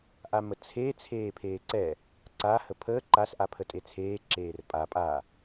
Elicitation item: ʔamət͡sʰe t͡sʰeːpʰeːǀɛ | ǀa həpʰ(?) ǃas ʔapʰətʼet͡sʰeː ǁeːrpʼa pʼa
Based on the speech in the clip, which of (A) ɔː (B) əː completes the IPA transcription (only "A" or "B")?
B